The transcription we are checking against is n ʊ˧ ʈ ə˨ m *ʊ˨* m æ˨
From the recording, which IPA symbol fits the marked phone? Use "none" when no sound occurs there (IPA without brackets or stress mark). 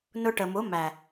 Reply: ʊ˨˦